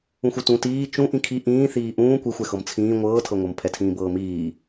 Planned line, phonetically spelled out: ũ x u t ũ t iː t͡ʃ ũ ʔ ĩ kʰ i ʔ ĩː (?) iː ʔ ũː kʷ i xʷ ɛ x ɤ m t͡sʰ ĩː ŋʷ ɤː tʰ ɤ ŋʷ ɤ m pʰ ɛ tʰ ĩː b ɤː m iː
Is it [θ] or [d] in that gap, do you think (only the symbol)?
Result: θ